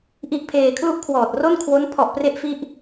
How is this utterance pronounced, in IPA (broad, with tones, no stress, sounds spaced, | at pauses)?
ʔ i˦˥ ʔ pʰ eː˧ kʰ l u˥˩ ʔ kʰ w ɔː˨˩ t̚ r o˥˩ n kʰ w o˦˥ n pʰ ɔ˨˩ ʔ p r e˦˥ ʔ f i˦˥ ʔ